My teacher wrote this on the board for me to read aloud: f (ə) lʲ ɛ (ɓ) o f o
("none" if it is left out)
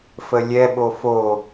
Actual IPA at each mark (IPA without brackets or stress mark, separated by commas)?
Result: ə, ɓ